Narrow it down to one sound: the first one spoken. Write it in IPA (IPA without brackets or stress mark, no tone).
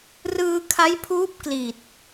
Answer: r